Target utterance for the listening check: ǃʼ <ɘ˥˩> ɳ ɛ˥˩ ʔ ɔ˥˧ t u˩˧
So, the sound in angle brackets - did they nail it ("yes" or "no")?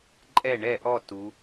no